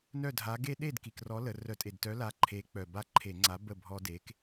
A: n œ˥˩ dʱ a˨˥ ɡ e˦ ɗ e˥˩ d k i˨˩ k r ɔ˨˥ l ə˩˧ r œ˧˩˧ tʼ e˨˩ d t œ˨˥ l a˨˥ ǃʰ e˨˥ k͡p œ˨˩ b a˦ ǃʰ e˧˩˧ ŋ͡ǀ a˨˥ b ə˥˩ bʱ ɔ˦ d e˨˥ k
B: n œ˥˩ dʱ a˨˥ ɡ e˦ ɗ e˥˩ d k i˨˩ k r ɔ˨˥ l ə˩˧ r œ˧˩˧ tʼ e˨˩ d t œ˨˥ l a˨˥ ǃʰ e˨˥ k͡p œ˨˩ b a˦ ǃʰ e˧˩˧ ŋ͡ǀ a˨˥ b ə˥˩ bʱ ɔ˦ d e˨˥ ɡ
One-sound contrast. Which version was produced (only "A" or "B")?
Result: A